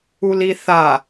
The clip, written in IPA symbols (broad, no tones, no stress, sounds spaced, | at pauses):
u l i θ a